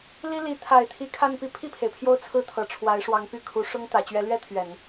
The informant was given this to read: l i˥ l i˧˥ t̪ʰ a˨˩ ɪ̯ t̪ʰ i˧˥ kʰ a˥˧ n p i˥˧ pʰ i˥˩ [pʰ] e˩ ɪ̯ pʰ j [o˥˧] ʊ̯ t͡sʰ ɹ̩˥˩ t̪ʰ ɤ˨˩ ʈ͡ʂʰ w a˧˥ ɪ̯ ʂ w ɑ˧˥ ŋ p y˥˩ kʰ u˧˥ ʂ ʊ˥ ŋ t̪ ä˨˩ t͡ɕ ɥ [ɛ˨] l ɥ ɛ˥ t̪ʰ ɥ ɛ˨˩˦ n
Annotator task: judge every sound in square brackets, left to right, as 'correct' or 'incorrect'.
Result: correct, correct, incorrect

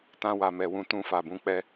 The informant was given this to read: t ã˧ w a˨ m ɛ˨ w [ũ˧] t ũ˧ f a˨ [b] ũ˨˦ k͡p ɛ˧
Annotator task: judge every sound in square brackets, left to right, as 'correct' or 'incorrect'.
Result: correct, correct

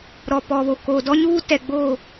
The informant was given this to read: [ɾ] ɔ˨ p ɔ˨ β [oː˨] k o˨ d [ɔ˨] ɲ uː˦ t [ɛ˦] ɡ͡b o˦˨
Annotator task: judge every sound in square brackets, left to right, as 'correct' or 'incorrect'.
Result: correct, incorrect, incorrect, incorrect

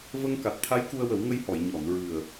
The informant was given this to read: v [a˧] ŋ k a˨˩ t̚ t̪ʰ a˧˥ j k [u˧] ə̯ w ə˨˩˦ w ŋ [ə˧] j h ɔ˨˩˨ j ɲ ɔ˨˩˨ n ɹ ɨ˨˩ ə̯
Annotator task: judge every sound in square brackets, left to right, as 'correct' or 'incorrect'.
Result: incorrect, correct, correct

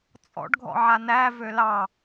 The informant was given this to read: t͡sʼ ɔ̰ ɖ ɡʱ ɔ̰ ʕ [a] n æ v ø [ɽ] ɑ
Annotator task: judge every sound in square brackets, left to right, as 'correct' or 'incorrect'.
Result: correct, incorrect

